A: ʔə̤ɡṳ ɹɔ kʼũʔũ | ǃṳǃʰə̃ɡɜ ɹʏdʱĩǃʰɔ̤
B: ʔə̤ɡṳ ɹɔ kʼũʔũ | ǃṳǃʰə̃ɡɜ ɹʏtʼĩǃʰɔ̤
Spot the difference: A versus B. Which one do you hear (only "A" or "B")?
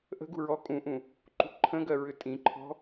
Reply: B